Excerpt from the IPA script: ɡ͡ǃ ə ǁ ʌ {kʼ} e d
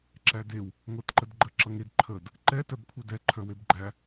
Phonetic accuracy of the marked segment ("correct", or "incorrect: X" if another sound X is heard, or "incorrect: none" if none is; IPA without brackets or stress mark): incorrect: ŋ